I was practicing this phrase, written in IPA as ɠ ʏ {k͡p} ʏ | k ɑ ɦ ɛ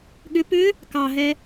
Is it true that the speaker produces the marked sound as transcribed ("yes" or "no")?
no